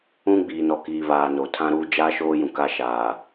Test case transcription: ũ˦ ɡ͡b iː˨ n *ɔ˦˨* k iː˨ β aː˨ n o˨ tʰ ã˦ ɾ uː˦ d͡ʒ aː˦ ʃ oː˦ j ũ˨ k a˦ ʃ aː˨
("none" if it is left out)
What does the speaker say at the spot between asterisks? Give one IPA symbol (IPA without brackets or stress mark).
ɔ˨